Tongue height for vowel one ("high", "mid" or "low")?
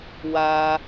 low